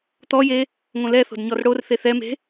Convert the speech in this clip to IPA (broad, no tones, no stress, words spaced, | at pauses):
t̪ɔje | ŋõlɛθo̤d ɲɔrɽorθe θɛme̤